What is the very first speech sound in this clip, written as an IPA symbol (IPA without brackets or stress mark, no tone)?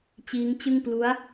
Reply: t͡ɕ